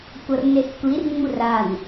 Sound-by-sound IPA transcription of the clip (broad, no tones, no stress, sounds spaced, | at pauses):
kʷ ʌ r n e s kʷ i r ŋ͡m u r a n